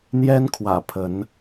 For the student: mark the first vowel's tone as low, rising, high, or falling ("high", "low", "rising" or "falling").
high